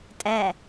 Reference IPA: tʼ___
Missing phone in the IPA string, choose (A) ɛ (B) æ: A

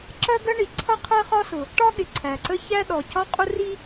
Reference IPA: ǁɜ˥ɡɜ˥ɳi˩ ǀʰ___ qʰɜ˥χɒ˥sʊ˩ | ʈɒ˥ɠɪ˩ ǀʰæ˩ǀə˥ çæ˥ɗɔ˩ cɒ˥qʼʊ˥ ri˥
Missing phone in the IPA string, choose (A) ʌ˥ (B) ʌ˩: A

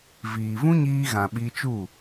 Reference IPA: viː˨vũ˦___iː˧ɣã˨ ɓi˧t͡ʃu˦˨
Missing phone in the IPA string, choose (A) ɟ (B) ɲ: B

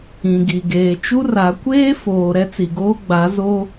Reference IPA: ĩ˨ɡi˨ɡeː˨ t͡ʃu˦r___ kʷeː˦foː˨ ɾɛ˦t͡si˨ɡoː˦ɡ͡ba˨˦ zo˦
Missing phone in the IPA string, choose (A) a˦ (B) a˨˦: B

